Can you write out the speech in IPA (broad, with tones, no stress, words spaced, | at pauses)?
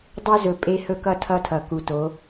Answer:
dˤo˦zɵ˨ pʼe˦hɵ˦kʌ˦ tʰʌ˦tʰʌ˨ku˨to˨˦